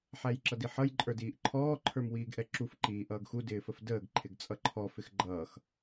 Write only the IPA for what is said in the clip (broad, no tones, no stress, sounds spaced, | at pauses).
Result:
ħ æ j ǁ ʌ d i ħ ʌ j ǃʼ ə˞ d iː ʔ ǃʰ ɔː ǃʰ ə˞ m w iː ɡ ʔ ɛ ǁ u f ǃ iː ʔ ʌː ɡ x u d ɪː f ə f d əː ɡ ǃʰ ɪ ɡ t͡sʼ ʌ ǃʰ ɔ f ɪ x ɡ͡ǃ ʌː x